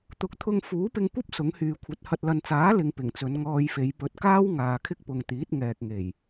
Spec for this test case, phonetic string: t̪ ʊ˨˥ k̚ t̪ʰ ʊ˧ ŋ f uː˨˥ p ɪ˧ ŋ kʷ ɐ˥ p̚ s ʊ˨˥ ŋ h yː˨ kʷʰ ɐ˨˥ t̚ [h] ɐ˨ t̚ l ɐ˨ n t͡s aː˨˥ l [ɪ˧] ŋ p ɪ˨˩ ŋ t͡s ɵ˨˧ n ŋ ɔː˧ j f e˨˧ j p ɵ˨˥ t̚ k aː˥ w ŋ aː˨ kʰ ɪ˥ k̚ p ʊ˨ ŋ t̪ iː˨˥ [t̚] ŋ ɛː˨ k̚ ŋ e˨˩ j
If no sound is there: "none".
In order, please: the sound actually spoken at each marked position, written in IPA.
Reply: h, ɪ˧, t̚

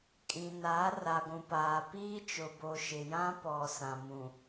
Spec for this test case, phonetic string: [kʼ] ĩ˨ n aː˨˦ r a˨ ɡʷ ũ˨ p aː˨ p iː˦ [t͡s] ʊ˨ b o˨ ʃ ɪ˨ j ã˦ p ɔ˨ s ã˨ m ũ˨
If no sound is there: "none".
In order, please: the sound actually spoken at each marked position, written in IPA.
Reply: kʼ, t͡ʃ

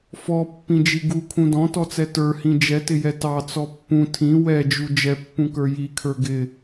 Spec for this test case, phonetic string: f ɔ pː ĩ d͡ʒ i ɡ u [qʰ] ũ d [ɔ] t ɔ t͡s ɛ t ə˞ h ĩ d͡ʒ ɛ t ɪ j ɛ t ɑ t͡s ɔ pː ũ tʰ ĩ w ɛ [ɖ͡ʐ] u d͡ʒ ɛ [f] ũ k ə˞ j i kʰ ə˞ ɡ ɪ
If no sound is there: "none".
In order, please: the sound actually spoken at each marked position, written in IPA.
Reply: kʰ, ɔ̃, d͡ʒ, pː

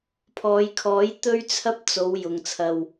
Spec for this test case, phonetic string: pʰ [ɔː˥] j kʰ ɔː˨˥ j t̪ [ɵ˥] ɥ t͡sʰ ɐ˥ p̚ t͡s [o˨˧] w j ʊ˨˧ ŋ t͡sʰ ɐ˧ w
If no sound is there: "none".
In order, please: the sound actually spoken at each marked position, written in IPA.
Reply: ɔː˨˧, ɵ˥, o˨˧

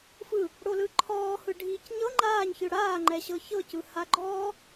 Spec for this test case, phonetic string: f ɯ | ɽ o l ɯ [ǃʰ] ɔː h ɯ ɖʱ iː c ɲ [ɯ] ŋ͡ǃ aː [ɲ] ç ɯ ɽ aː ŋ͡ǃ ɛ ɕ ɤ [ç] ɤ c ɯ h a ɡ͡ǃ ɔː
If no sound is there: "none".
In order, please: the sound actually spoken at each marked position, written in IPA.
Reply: ǃʰ, ɤ, ɲ, ç

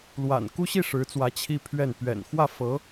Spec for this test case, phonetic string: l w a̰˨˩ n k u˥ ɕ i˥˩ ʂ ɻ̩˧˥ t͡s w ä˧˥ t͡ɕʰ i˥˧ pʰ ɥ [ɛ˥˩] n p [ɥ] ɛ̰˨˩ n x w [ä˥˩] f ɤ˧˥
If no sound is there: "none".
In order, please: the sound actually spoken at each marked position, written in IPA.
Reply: ɛ˥˩, ɥ, ä˥˩

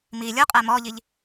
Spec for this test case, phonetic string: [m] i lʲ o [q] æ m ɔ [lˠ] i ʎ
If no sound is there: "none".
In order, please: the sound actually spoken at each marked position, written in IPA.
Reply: m, qʼ, ʎ

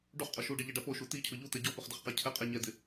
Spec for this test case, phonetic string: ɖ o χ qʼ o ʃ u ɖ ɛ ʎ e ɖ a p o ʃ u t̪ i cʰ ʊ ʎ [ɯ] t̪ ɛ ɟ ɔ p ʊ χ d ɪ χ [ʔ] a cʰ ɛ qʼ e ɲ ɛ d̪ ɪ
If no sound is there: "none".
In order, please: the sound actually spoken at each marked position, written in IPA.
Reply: u, q

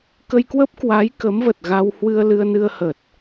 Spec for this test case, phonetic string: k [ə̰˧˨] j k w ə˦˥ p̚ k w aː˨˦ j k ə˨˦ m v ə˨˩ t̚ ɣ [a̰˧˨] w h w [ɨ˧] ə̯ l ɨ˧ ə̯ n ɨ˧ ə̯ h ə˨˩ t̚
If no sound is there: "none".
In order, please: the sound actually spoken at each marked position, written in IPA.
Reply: ə˧, a˧, ɨ˧

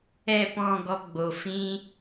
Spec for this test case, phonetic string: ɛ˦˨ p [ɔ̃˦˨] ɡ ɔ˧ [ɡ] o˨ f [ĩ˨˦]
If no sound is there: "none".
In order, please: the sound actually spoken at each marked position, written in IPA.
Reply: ɔ̃˦˨, ɡ͡b, ĩ˦

